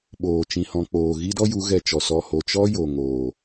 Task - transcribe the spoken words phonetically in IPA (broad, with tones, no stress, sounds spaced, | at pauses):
ɓ oː˨ t͡ʃ ĩ˧ h ɔ̃˧ k͡p oː˨ ɣ i˦ d ɔ˦ j u˨˦ ɣ ɛ˧ t͡ʃ ɔ˨ s ɔ˧ h o˨ t͡ʃ ɔ˦ j o˨ ŋ oː˨